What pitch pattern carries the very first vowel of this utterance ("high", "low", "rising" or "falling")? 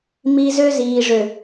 high